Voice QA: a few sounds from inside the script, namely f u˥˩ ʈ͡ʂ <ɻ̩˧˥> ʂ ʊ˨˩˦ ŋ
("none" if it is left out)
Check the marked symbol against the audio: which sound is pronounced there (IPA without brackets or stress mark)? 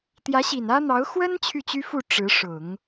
ɻ̩˧˥